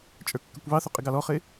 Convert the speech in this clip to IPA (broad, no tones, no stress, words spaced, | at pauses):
t͡ʃʼə˞kːəkʷβɑθʊ qʼɪɡɑlɔχɪ